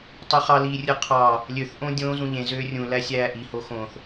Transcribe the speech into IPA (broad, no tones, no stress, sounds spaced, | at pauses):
tˤ e χ ɑ l iː rʲ ɯ qʰ ɑ | lʲ ø θ ʔ õ dʲ õ z ũ ʎ ẽ z øː rʲ ũ l æ sʲ æː ʔ i h o x õ θ